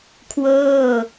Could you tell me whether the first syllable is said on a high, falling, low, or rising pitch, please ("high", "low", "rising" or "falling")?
falling